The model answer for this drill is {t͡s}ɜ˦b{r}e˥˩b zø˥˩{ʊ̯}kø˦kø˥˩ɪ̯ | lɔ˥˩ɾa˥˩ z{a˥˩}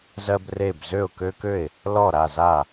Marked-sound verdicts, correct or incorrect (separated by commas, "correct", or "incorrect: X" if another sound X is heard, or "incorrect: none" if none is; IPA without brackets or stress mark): incorrect: z, correct, correct, correct